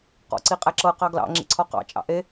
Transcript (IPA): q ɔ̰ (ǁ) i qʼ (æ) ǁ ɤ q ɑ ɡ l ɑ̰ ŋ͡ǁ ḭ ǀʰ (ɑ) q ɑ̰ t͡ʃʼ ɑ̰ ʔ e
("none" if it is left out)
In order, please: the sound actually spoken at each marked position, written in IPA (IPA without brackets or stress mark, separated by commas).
ǀ, æ, ɔ